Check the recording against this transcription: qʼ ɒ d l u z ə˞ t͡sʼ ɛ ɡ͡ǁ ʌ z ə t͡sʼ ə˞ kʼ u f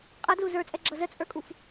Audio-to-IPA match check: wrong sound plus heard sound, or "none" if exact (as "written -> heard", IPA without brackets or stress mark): ɒ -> ʌ